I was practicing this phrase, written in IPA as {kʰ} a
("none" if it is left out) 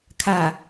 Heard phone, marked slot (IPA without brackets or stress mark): kʰ